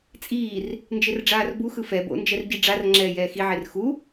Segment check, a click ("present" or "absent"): present